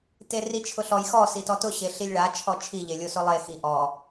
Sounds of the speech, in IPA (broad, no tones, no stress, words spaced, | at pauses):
terit͡ʃʰʊɬɔj xɔ sitɔtʊ ɕeɬilʲɭa t͡ʃʰɔt͡ʃʰi ʎelʲosʊlˠe xiʔɔ